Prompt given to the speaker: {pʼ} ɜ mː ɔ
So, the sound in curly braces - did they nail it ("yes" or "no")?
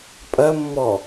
yes